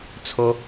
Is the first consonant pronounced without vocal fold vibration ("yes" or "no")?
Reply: yes